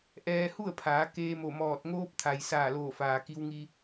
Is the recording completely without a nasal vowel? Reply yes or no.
yes